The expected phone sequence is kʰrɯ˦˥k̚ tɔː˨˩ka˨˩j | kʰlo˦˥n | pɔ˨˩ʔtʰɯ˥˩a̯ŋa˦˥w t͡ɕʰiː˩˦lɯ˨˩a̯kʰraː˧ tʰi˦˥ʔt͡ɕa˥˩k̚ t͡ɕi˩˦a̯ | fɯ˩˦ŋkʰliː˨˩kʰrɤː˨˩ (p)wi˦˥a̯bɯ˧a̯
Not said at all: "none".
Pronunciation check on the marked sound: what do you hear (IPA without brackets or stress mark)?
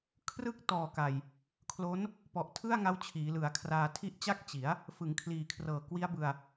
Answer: k